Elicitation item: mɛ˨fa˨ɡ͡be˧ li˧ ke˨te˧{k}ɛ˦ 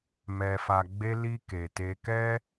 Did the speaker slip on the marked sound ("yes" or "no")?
no